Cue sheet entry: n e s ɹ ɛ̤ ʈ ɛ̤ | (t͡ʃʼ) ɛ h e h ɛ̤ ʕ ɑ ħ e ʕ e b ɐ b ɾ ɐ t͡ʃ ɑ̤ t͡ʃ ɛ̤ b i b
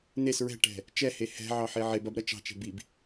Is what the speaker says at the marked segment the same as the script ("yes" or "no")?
no